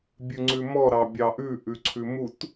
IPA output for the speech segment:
bʲ ʉ ŋ͡ǀ ʉ m ɔ ɾ ɑ bʲ ɑ ʔ ʉ ʔ ʉ ǀʰ ʉ m u t

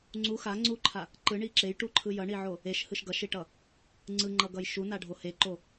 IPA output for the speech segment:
ŋ͡ǀ u x a ŋ͡ǀ u ǃʰ a | ǃ ɯ ɳ i ǁ e j ʈ u ǃʰ ɯ j ʌ ɳ i ʕ o | e ʃ h ɯ ʃ ɡ ʌ ʃ i ʈ ʌ | ŋ͡ǀ ɯ ŋ͡ǃ ʌ ɡ ʌ j ʃ u n a ɖʱ o h e ǃ o

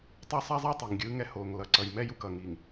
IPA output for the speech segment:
tˤ o˦ sˤ a˦ zˤ a˦ tˤ i˨ ŋ ɡʲ ɯː˦ ŋ ɛ˦ h oː˨ ŋ l ʌ˨ ǀ ʌ˨ j m ɛ˦ j u˦ k ʌː˨ ŋ iː˨ ŋ

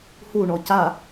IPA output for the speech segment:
h u ɳ ɔ c a

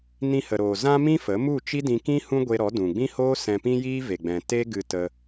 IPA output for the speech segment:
n ĩ˧ h ə˨ ɾ oː˨ z ã˦ m ĩ˦ f ə˨˦ m u˦˨ t͡ʃ i˦ d ĩ˧ k ĩ˦ h ũ˦ ɡʷ e˧ ɾ ɔ˨˦ d ũ˨ ɡ͡b ĩ˦ h oː˦ s ɛ̃˧ p ĩ˦ j iː˦ v e˨ ɡ͡b ɛ̃˨ t e˦ ɡ ɨ˧ t ə˧

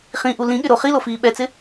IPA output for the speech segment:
χ ĩ ʔ u l ĩ ɠ ɪ ɾ o χ i l o f iː ɓ ɛ t͡s ɪ

